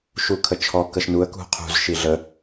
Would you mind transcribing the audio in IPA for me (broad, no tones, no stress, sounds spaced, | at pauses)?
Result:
ʃ u kʰ ə t͡ʃʰ ɔ k ə ʃ n u ə̯ k ṳ qʰ ṳ z ʃ i ɮ ə